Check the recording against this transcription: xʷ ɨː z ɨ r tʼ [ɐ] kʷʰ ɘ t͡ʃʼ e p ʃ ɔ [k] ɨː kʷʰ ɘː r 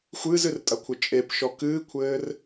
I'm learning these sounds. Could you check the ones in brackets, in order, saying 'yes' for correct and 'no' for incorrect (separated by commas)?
yes, yes